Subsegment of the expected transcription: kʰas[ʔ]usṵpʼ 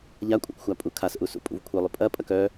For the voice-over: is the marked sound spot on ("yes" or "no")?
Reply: yes